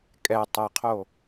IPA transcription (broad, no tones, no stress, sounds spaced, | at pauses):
kʼ ɛ tˤ ə qʰ o